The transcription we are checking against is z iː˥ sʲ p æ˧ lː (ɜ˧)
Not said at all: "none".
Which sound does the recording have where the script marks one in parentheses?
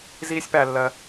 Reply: ɜ˧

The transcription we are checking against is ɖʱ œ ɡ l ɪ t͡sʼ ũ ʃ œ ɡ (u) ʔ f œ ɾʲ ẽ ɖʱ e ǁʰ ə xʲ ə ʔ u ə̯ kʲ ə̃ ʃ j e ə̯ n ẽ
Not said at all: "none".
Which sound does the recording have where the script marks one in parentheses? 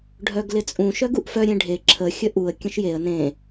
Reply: u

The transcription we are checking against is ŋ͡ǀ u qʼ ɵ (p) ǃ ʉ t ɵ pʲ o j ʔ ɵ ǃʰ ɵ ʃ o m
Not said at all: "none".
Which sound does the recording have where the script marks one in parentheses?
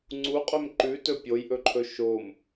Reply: m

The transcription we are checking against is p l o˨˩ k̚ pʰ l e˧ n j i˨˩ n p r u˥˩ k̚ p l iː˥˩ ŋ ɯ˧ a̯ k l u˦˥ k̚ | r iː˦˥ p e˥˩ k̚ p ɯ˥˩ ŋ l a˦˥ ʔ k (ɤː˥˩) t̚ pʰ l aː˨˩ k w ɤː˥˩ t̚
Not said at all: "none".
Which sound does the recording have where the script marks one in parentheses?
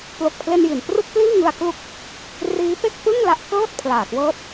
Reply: ɤː˥˩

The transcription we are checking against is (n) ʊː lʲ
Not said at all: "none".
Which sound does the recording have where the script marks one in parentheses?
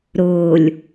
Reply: ɾ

